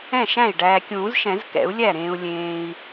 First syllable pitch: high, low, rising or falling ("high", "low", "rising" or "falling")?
falling